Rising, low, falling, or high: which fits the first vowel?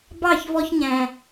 falling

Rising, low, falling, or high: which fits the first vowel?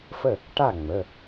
falling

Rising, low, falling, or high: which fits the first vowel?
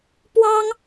high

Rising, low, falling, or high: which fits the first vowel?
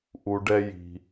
low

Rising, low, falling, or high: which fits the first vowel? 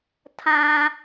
high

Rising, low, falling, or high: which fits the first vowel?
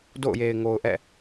falling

